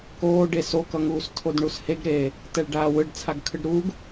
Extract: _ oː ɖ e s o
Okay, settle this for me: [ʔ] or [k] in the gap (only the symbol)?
k